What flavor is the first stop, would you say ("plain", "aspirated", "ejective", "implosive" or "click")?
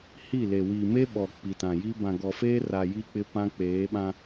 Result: implosive